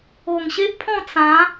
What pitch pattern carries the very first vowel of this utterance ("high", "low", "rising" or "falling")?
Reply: low